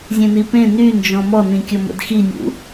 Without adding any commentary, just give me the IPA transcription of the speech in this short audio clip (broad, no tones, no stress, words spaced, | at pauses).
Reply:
zʲẽnipẽ nynd͡ʒɔ̃ mɔnĩkʲɔ mə̰dxinʲṵ